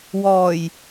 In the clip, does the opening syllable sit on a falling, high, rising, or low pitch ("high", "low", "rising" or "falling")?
low